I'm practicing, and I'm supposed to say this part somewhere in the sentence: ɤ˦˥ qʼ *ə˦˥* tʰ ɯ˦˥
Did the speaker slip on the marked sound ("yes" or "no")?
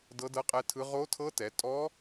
yes